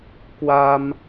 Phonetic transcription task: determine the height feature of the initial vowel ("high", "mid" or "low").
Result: low